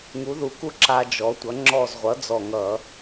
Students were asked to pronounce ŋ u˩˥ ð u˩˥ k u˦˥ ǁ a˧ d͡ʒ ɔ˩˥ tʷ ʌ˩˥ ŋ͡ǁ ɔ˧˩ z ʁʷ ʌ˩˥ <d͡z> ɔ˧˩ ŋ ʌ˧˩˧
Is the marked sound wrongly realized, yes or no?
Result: no